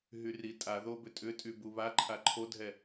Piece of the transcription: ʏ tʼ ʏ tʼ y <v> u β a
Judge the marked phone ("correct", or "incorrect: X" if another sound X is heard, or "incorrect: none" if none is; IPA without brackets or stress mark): incorrect: b